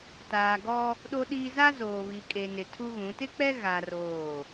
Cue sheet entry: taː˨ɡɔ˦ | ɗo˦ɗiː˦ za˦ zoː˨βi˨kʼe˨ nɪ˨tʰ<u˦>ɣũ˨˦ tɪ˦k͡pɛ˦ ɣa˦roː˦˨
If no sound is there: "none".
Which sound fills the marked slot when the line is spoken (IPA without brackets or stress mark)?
u˦